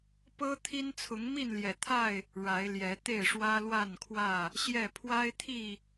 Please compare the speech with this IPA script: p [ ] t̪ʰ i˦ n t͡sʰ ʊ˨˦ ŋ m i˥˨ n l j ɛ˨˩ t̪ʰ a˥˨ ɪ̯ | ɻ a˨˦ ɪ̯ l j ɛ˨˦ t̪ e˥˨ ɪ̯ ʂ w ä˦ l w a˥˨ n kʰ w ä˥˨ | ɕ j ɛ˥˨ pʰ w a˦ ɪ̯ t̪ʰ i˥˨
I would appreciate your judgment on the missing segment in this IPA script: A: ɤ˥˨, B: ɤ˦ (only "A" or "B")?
B